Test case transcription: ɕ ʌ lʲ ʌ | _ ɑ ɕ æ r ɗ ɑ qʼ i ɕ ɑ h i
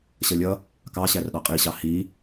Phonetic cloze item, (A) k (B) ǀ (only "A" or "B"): A